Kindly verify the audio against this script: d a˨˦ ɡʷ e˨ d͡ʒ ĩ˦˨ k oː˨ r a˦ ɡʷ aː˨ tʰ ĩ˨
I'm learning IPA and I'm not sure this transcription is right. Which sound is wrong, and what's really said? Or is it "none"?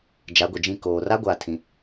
d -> d͡ʒ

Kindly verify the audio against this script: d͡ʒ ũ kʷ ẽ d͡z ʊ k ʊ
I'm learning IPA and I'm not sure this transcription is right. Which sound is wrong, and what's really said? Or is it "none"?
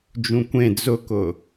none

